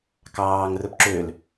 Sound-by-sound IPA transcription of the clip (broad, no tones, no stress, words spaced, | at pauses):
kɑːŋ rɵpǁøl